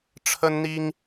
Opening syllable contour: high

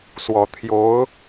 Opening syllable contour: low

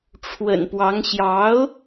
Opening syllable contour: low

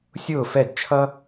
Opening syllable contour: falling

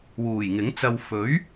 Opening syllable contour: low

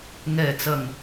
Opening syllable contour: low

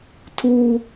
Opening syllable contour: high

